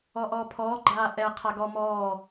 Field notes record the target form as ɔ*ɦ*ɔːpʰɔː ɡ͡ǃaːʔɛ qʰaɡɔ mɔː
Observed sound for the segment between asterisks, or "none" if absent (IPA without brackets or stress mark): ʔ